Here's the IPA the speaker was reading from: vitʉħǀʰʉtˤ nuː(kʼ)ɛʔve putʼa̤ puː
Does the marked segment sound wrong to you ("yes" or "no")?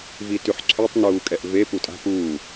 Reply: no